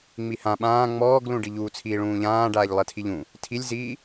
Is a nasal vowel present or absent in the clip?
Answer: present